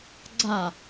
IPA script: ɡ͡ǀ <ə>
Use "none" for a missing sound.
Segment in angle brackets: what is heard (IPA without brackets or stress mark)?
a